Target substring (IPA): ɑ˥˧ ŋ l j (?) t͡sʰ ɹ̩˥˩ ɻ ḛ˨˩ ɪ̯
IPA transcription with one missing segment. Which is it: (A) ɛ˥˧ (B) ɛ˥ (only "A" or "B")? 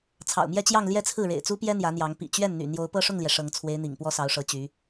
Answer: A